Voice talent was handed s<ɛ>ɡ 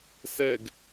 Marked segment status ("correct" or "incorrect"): correct